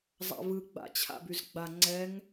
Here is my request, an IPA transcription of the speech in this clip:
zˤ a̰ v ɯ ɡ͡b a̰ t͡ɕʰ a̰ b y z ɡ͡b a ŋ͡ǀ ɛ ŋ

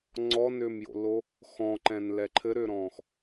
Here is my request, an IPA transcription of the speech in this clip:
ŋ͡ǀ ɔ n ʏː m j o̰ l o | x ɔ̃ ǃ ɛ̃ n l ɛ ǃʰ ɘ ɾ ʏː ɾ ɔ̃ː x

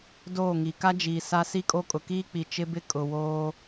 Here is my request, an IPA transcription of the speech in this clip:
d oː˦˨ ŋ i˨ k a˦ d͡ʒ iː˨ s a˦ s i˦ kʼ o˦ kʼ ʊ˨ k iː˦ k͡p i˨ t͡ʃ ɪ˦ b ɪ˦ kʼ ʊ˨ w oː˦

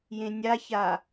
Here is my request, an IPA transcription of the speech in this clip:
j ẽ nʲ a ç a

